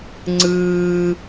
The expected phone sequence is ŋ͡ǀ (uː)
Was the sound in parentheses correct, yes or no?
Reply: no